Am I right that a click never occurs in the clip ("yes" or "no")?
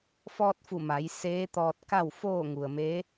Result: yes